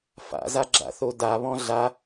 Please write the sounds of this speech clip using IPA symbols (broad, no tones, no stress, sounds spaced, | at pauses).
f a̰ z a ɡ͡ǁ a̰ θ o d a β ɔ̃ ɮ a